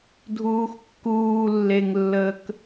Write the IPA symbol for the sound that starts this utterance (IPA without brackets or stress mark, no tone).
dʱ